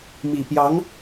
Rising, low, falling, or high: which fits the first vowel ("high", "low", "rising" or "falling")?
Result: low